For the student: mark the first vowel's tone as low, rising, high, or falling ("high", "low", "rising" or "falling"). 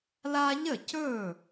high